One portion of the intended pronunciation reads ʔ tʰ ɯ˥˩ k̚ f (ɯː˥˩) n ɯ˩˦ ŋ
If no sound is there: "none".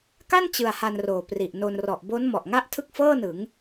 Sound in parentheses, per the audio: ɤː˥˩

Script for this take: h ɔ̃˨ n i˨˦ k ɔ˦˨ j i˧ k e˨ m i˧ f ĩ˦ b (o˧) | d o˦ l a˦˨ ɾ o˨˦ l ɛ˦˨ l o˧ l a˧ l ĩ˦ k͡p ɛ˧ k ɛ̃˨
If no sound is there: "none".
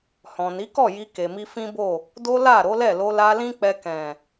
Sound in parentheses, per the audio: o˦˨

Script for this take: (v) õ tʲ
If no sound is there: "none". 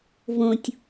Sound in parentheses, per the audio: v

